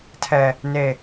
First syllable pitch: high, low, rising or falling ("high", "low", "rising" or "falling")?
high